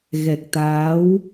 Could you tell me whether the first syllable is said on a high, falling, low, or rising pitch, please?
low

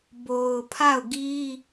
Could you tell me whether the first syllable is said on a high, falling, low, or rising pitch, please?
low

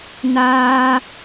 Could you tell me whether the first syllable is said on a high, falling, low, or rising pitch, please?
high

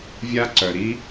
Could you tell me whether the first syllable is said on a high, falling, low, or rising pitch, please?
high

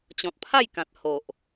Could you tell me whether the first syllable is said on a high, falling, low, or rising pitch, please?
low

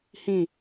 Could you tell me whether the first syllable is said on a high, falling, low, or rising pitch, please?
falling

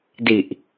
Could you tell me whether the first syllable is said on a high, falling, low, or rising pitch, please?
low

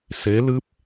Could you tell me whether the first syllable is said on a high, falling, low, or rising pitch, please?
rising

